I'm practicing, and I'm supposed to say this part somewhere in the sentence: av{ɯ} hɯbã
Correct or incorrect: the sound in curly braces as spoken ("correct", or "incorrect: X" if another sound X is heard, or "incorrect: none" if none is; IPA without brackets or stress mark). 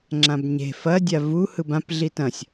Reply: incorrect: u